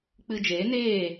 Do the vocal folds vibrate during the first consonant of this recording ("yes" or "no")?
no